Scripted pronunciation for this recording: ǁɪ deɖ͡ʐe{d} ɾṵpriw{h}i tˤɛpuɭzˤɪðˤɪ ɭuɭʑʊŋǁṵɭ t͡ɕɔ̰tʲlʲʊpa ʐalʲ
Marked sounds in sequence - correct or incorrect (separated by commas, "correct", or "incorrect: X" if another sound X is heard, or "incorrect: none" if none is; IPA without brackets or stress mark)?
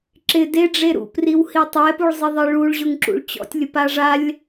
incorrect: none, correct